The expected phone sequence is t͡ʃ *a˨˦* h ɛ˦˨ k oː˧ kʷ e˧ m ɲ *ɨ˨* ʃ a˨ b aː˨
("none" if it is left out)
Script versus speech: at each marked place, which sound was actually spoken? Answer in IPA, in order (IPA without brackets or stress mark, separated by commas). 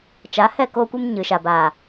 a˨˦, ɨ˨